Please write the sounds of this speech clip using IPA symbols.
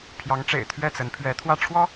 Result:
pʰ j ɑ˧˥ ŋ ʈ͡ʂ ḛ˨˩ ɪ̯ t̪ʰ ɥ ɛ˥˩ t͡s ə˧˥ n pʰ ɥ ɛ˧˥ t̪ʰ w ä˥˩ ʈ͡ʂʰ w ɔ˥

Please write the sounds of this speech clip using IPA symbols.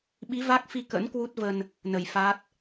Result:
ɓ i˨˦ v a˦˥ k̚ f i˧ k ə̰˧˥ n k w u˦˥ t̚ v ə˧ n | n ə˧˩ j f a˦˥ t̚

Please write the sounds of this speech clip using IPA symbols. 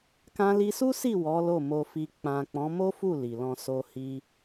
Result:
k ã˧ l i˧ s u˦ s i˦˨ w ɔ˨˦ l o˦˨ m o˧ f i˧ k͡p ã˨ k͡p ɔ̃˨˦ m o˦ f u˦˨ l i˨ l ɔ̃˧ s o˧ h i˧

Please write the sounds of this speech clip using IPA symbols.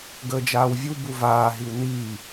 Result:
ɡ əː d͡ʒ aː w vʲ u b u v aː ɦ i w n iː

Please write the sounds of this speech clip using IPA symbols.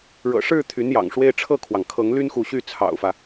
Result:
ɻ ɤ̰˨˩ ʂ ɻ̩˥˩ t̪ʰ y˧˥ n j ɑ̰˨˩ ŋ ʂ w e˥˧ ɪ̯ ʈ͡ʂʰ ɤ˥˩ kʰ w ɑ˩ ŋ kʰ ɤ˧˥ ŋ l y˥ n x u˧˥ ɕ y˥˩ t͡sʰ ɑ̰˨˩ ʊ̯ f ä˦

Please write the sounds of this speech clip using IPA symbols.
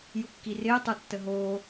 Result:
j u kː i r ɪː tˤ u tː ə ɦ oː

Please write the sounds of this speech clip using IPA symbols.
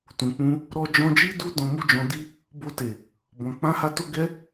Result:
t ũ˨ k͡p ũ˧ | ɾ ɔ˧ d͡ʒ ɔ̃˧ d͡ʒ i˦ d u˦ d ɔ̃˧ m u˦ d͡ʒ ɔ̃˧ d i˦ | b o˧ t e˨ | b ɔ̃˨ k͡p ã˧ h a˧ t o˧ ɡ ɛ˧

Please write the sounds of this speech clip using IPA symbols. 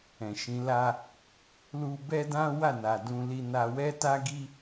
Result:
ɛ̃˨ ʃ ĩ˨˦ l a˦ | l u˧ b ɛ˦ d ã˦ w a˦˨ n a˨ d ũ˧ l i˧ n a˧ w ɛ˦ t a˦ ɡ i˦

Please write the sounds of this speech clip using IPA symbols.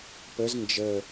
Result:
p ə z n d͡ʒ ə

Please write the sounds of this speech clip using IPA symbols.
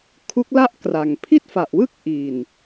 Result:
kʰ u˦˥ k̚ l a˥˩ ʔ k r a˨˩ ŋ pʰ i˥˩ t̚ f a˨˩ ʔ w ɯ˥˩ k̚ ʔ i˨˩ n

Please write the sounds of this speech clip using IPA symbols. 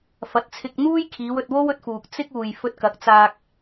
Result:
f ɐ˨˥ t̚ t͡sʰ ɪ˧ k̚ n̪ uː˥ j kʰ iː˨˧ w ɵ˧ t̚ w o˥ w ɵ˧ t̚ f uː˨ k̚ t͡s ɪ˥ k̚ uː˨ j f ɵ˧ t̚ k ɐ˨˥ k̚ t͡s aː˧ k̚

